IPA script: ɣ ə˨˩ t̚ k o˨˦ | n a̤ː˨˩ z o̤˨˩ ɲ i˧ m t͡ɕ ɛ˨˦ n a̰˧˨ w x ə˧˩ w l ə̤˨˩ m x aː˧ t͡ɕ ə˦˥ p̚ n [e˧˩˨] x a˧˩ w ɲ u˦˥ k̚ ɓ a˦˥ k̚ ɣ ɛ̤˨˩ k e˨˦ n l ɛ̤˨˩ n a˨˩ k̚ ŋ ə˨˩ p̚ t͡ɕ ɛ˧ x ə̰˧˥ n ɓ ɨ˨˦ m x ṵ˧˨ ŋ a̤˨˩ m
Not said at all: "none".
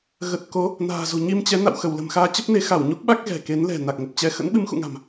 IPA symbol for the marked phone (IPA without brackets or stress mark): e˨˦